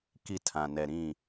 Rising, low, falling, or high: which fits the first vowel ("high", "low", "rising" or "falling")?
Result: high